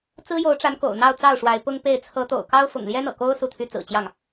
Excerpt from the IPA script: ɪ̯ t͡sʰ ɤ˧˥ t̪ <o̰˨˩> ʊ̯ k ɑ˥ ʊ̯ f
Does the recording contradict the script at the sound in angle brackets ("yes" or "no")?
no